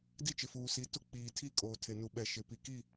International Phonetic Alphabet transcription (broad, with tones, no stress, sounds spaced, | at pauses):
d i˦ t͡ʃ ɪ˨ f uː˨ s i˨˦ t ʊ˦ k͡p iː˨ tʰ i˦ kʼ oː˨ tʰ e˨ n u˨ ɓ ɛ˨ ʃ ɪ˨ p i˨ k i˦˨